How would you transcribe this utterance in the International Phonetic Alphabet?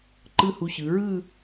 ǃ ɯ˥˧ h u˧ ɕ ɯ˩˧ ɹ ɯ˥˧

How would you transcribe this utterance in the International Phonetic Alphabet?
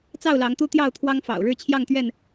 t͡s ɑ˥˨ ʊ̯ l ɑ˨˦ ŋ t̪ u˦ t̪ j ɑ˥˨ ʊ̯ t̪ʰ w ɑ˦ ŋ f ɑ̰˨˩ ʊ̯ ɻ ɻ̩˥˨ t͡ɕʰ j ɑ˥˨ ŋ t̪ ɥ ɛ˥˨ n

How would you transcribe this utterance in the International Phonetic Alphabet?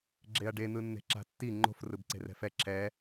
ɡ͡ǁ e ɐ̯ ɖ e n̪ ɯ nː e̤ ǁ a̤ tː i ŋ͡ǃ o̤ f r ɯ b ǀ e̤ r ɛ̤ f ɛ ǁʰ ɛ

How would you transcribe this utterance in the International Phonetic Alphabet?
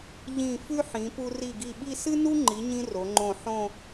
ʎ ĩ˧˩ f ʉ˥ ħ ĩ˩˧ p u˧ r i˧˩ ɡ i˧˩ ɓ i˥˧ s ɨ˥ n u˥ ŋ͡ǃ i˩˧ ɲ ĩ˧ r o˩˧ ŋ͡ǃ õ˧˩ ħ õ˥˧

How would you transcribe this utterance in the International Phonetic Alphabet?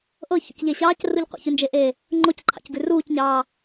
ʔ ɤ ç ṵ c ʎ e ɕ ɑː c r u ʎ qʷ ɑ̰ ç ʉ n d͡ʒ e ʔ eː | ŋ͡ǃ o c ǃʰ ɑ̰ c ɡ ʉ r uː c ɲ ɑː

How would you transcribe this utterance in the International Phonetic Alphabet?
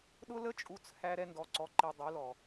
ɗ ʊ˦ l ə˦ t͡ʃʼ u˧ t͡s h æ˧ ɾ ɛ˧ n d ɔ˨ ǀ ɔ˨ ǃ i˨ dˤ u˨˦ l ɔ˨

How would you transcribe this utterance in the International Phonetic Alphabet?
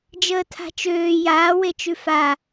d͡ʒ əː tʰ a̤ t͡ʃ øː j aː w e t͡ʃ ʉ f a

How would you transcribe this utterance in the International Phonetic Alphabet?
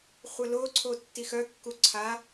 χʷ ə l o ǀʰ o tː i x œ kː u ǀʰ a

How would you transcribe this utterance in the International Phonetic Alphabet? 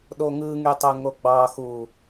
ɗ o ŋ ɯ ŋ y tˤ o ŋ o ɡ͡b ɑ x u

